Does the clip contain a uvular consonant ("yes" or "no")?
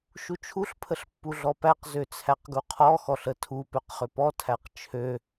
yes